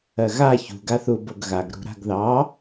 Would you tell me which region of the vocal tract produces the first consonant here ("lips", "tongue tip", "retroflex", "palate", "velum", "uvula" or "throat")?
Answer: velum